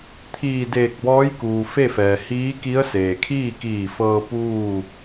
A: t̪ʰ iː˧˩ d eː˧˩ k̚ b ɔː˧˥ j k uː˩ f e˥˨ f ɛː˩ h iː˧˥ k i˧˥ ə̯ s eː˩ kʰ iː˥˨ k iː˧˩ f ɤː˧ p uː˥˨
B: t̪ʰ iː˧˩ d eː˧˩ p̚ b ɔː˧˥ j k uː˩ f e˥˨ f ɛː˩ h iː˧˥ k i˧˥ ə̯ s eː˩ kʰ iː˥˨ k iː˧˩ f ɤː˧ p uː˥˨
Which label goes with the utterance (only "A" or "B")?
A